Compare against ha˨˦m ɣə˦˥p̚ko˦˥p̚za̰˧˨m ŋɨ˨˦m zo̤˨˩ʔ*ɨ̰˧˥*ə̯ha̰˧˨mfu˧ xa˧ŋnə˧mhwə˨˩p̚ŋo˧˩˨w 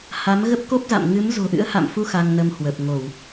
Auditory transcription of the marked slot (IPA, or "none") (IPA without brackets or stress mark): ɨ̰˧˥